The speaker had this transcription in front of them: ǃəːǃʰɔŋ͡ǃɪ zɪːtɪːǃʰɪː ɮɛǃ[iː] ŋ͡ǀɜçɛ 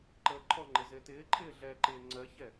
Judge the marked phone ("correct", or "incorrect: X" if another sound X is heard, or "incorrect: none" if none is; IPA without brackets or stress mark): incorrect: ɪː